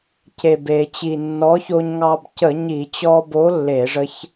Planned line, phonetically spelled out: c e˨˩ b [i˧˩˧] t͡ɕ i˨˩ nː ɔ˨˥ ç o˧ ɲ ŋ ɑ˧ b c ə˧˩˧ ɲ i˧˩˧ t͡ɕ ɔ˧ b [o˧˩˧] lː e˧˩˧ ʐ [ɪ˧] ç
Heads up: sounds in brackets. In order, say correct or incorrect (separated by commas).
incorrect, incorrect, incorrect